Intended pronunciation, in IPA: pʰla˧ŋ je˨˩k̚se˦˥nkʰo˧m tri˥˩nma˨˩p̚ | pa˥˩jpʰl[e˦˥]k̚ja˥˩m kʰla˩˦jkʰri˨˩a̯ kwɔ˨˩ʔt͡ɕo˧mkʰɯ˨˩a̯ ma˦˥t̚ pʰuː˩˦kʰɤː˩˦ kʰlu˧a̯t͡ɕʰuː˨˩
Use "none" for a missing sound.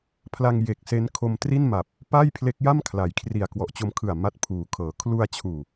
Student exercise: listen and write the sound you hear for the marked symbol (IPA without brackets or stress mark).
e˦˥